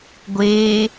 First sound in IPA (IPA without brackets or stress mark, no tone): ɡʷ